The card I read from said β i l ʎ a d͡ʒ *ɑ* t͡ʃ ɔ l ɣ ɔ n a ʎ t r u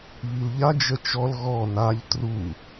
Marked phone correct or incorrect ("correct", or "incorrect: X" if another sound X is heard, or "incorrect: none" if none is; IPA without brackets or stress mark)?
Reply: incorrect: ə